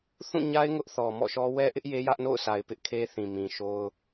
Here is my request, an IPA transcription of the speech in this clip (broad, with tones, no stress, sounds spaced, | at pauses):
θ ũ˦˨ ɲ a˦ ɪ̯ ŋ ʊ˦ ʔ θ ɔ˨ m ɔ̰˦˨ ʃ ɔ˦ w ɛ˦ ʔ ɪ˦ ʔ j e˦ j ä˦ ʔ n o̰˦˨ ʊ̯ s a˨ ɪ̯ p ɪ˦ ʔ kʰ e˦ θ ĩ˨ m ĩ˨ ʃ o˦ ʊ̯